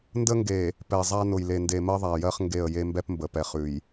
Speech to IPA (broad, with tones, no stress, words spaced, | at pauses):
ndə˦ŋɡe˨ | pɛ˨zˤa˦nʊ˨j le˨nde˨mɜ˦ðˤa˨ jɜ˦χŋɡe˦˨ə̯je˦ mbɛ˦pmbə˨pɛ˨χʉ˨j